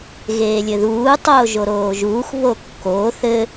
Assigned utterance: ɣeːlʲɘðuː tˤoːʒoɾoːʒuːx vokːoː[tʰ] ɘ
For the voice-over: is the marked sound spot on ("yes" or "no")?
no